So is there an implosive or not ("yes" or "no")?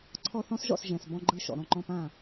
no